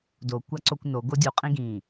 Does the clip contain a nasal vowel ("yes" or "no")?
yes